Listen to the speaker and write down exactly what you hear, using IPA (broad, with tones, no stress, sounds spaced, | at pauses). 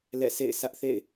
l ɛ̰˦˨ s ḛ˦˨ ɪ̯ sʰ ä˦ ʔ θ ḛ˦˨ ɪ̯